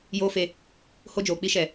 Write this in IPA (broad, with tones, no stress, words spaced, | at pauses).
joː˦fe˧ | ho˦d͡ʒoː˨k͡pi˦ʃɛ˨